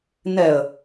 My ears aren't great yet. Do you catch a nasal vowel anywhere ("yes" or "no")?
no